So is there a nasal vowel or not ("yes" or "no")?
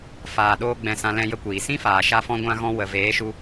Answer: yes